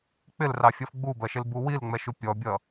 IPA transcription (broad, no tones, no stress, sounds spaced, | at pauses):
k͡p ɪ l r ɑ fʲ ʌ f ɡ͡b u b ɜ ʃ ɪ l b u w i l ŋ͡m ɛ ʃ u pʲ ɔ bʲ ʌ